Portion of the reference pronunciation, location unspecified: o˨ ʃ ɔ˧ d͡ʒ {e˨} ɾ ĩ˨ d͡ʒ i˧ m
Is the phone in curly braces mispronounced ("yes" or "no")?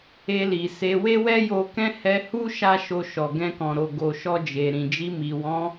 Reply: no